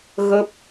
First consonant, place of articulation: velar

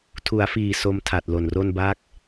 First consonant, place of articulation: alveolar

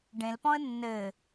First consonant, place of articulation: retroflex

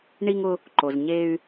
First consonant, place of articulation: retroflex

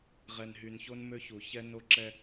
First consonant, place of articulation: uvular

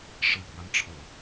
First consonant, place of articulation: retroflex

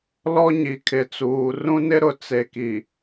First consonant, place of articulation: alveolar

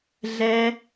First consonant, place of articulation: alveolar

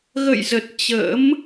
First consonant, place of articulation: velar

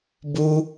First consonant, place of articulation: labial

